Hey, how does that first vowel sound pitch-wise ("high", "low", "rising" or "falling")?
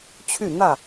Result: falling